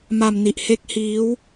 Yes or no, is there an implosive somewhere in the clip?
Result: no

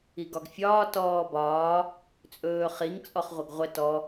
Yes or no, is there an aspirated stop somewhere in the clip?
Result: no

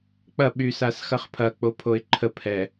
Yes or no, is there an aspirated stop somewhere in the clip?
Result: yes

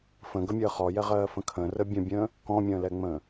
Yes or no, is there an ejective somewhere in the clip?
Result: no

